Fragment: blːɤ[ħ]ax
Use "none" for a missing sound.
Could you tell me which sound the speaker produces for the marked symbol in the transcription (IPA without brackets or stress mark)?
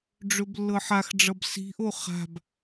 ħ